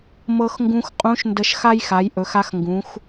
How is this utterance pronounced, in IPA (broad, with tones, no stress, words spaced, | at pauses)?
mɤ˧xŋɡũ˧x qʼũ˧˥ʃ ndə˧ʃxa˥jxa˩˧j ʔɵ˩˧xa˧xŋɡũ˩˧x